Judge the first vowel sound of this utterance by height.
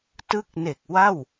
high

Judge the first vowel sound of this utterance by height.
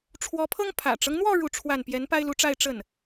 mid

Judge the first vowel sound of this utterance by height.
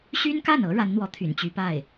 high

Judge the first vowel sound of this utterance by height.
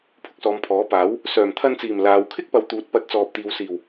high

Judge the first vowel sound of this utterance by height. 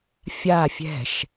low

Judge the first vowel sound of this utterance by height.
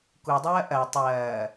high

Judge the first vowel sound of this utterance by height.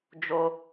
mid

